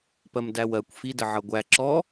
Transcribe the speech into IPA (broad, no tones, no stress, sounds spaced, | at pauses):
p ɜ m d æ w ɜ kʷ f i d ə ʕ ʌ ɡʷ æ ǁ ɔ